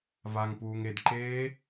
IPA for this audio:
v a ŋ p uː ŋ e d ǃ eː

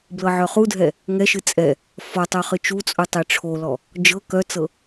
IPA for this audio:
b l ɤ ʕ œ χ u dʱ ɛ | ŋ ɛ ʃ ɨ t͡sʼ ɛ | f ɔ tˤ œ χ ɨ t͡ʃ u t͡sʼ u tˤ e ʈ͡ʂʰ o l ɔ | d͡ʒ ɤ k œ t͡s ɤ

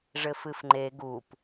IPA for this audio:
ʐ ɘ f ɨ f ŋ͡ǃ e ɡ u p

